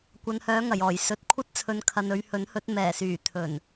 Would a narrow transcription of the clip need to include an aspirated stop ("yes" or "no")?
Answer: yes